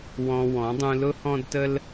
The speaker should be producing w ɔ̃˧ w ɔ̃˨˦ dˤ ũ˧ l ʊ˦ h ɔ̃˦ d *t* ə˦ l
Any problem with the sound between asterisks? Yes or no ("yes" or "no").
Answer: no